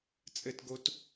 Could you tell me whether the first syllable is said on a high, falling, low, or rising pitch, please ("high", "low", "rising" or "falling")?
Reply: high